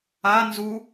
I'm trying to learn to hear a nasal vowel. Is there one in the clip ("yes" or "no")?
no